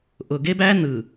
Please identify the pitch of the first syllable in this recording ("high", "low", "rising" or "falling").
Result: low